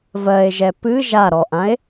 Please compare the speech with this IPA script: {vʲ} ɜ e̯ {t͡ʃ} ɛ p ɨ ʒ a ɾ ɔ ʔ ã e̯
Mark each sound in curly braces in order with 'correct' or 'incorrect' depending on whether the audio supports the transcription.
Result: incorrect, incorrect

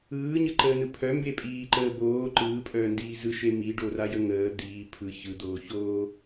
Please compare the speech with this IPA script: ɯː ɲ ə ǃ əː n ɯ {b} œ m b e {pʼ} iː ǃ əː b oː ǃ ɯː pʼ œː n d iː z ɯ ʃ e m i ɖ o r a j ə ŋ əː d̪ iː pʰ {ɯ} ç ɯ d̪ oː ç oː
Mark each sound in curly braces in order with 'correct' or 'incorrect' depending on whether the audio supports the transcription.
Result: incorrect, correct, correct

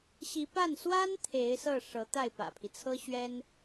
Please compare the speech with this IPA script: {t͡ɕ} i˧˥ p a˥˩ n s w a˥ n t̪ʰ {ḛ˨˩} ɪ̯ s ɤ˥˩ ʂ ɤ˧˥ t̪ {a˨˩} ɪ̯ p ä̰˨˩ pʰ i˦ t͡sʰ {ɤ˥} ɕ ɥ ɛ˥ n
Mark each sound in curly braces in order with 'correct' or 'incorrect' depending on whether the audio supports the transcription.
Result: incorrect, incorrect, incorrect, correct

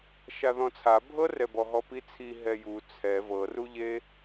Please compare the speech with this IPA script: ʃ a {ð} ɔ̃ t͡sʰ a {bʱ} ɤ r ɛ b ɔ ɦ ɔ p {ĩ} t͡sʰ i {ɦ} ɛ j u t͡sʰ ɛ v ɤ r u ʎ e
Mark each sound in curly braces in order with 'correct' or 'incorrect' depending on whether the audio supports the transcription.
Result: correct, correct, incorrect, correct

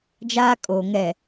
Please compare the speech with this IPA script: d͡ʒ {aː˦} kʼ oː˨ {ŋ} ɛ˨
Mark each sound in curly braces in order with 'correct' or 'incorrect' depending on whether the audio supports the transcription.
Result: correct, correct

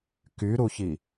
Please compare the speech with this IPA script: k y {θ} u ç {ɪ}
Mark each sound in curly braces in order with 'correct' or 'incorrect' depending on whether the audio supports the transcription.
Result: incorrect, incorrect

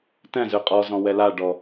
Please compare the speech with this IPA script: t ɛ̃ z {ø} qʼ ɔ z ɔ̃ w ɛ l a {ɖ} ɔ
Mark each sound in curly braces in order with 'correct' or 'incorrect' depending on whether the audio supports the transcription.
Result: correct, correct

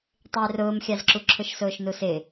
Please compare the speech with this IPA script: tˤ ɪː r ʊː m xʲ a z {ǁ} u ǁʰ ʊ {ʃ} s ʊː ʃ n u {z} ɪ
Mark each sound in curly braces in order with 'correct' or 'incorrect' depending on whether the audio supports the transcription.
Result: correct, correct, incorrect

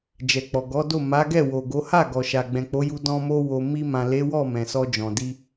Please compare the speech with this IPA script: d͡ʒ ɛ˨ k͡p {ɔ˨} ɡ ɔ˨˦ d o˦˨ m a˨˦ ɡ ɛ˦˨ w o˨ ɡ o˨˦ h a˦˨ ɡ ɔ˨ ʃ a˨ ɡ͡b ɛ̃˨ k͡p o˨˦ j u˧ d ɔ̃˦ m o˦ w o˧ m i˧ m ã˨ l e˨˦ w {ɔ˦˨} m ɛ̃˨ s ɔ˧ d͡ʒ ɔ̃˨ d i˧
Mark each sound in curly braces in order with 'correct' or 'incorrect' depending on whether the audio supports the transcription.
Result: correct, correct

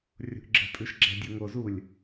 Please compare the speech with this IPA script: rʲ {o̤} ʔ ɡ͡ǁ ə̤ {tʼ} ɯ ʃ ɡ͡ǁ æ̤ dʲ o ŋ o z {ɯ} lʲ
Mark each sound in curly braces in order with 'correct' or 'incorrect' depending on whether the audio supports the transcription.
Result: correct, correct, incorrect

